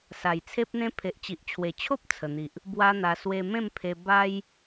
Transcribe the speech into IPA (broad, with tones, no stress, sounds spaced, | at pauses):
s a˨˩ j t͡sʰ e˦ p̚ n̪ ẽ˦ pʰ e˨ ʔ t͡ɕ i˨ ʔ t͡ɕʰ w e˨˩ t͡ɕʰ o˦ p̚ t͡sʰ ə˨˩ n̪ i˨ ʔ | b w a˦ n̪ a˧ s w e˧ m ẽ˥˧ m pʰ e˧ b a˦ j